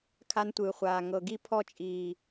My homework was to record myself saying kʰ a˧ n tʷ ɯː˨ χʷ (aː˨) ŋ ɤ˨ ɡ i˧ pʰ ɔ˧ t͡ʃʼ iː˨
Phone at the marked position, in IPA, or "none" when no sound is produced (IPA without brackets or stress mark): aː˨